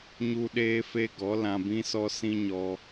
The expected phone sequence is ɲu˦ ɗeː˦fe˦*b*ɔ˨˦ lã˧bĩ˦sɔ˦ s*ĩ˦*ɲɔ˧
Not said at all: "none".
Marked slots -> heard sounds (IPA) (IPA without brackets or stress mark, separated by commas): ɡ, ĩ˦